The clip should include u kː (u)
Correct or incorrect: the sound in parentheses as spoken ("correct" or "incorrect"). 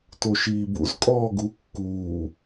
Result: incorrect